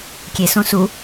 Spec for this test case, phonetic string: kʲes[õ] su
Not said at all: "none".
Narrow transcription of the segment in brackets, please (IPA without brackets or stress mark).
õ